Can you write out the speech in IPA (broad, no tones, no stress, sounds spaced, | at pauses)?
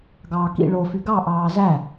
ɡ ɑː k ḭ ɭ o f y ɡ ɑ ʔ ɑː z æ